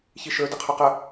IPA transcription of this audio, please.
ç i ʃ ə˞ d ɪ qʰ ʊ q ə

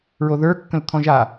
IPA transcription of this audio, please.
ɹ o ð ə˞ kː ə̃ l t̪ʰ ɔ̃ ʒ a

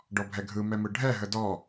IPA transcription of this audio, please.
ɖ ɔ bʱ ɛ ɡʱ ɯ m ɛ m ɯ ɖʱ ɛ ɦ ə d ɔ

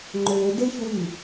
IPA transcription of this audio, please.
ŋ͡ǃ ø d e ç w y

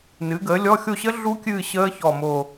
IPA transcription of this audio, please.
n ɨː˩˥ ɡ əː˩˥ lʲ ɔ˧˥˧ xʲ o˦˨ ɕ ə˦˥ ɮ u˦˥ kʲ ɨː˦˨ ɕ əː˦˥ ç ɔ˨˩ m o˨˩

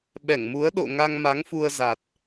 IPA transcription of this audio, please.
ɓ ɛ˧˩ ŋ m u˨˦ ə̯ ɗ o̰˧˨ ŋ a˧ ŋ m a˨˦ ŋ f u˧ ə̯ z a˨˩ t̚

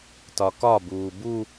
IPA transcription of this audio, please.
t ɒ k ɒ b uː b u

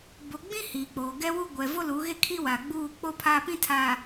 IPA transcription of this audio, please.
b o˨ ɡ͡b ĩ˦ h iː˨ k͡p oː˨ ɡ ɛ˦ w u˦ ɡʷ ɛ˨ v o˦ l uː˨˦ ɣ e˦ kʰ i˦ w a˨ ɡ͡b uː˦˨ k͡p o˦ pʰ aː˦ p ĩ˦ tʰ a˨

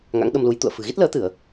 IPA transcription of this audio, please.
ŋ a̰˧˥ ŋ ɗ ə˧ m l u˨˦ j t̪ ṵ˧˨ ə̯ f ɨ̤˨˩ ɣ i˦˥ t̚ l əː˨˦ t̪ ɨ˧˩˨ ə̯

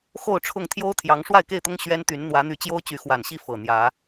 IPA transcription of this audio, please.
x o˥˨ ʊ̯ ʈ͡ʂʰ ʊ˥˨ ŋ t̪ʰ j o˦ ʊ̯ t̪ʰ j ɑ˨˦ ŋ ʂ w a˥˨ ɪ̯ k e˥˨ ɪ̯ t̪ ʊ˦ ŋ ɕ ɥ ɛ˦ n t̪ y˨˦ n n̪ w ä˨˦ n̪ y˨˦ t͡ɕ j o˦ ʊ̯ t͡ɕ y˨˦ x w a˨˩ n ɕ i˥˨ f ɤ˨˩ n̪ j ä˨˦

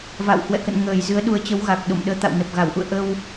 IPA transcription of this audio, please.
v a̰˧˨ w h w ɛ̰˧˨ k ə̰˧˨ n ŋ əː˧˩ j z ɨ˨˦ ə̯ ɗ u˨˦ ə̯ t͡ɕ ə˨˦ w ɣ a˨˩ k̚ ɗ o̰˧˨ m ɗ əː˨˦ t̪ a̰˧˨ w n ə˨˩ p̚ ɣ a˧˩ w ʔ ṵ˧˨ ə̯ ʔ ə˧ w

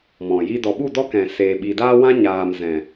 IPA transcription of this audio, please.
m ɔ̃˨ j i˦ d ɔ˨ ɓ u˦˨ d ɔ˦ k ɛ̃˨ s eː˨ ɓ i˨ d aː˦ w ã˦ ɲ aː˨ m z ɛ̃˨

